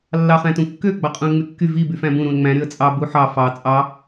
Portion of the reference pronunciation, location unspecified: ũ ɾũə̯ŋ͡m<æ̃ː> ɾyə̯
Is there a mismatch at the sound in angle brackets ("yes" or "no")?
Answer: yes